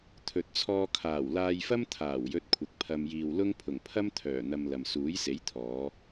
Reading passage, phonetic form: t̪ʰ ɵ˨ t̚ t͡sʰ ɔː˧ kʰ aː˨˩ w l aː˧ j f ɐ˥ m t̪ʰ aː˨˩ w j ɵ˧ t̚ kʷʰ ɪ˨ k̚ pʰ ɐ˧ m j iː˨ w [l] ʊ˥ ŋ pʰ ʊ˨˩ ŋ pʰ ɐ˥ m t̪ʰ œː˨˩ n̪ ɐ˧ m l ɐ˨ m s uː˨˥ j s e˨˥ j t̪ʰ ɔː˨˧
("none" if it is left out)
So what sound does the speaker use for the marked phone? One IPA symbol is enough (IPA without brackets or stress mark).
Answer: l